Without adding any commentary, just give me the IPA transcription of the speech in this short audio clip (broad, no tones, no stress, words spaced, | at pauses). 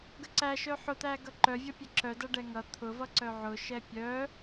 ɡəǀæʃœ ħʊt̪æɡʌ ǃœvʲʌpʲɛ ǁœ dʌɖɛŋʌ t̪ʰʊvʌ ǀœʕʊ ʃɛpʲœ